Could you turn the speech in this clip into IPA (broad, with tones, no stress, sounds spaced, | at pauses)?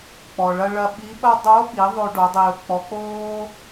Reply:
k͡p ɔ˩ ɭ ɐ˧ ɭ ɐ˧ ɓ i˧˥ ɓ ɐ˥ dˤ o˧˥ ɓ i˩˧ ðˤ o˧ ɖ o˩˧ dˤ iː˩ ʊ̯ k͡p ɔ˩˧ k͡p oː˥